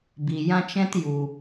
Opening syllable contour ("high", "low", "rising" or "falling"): low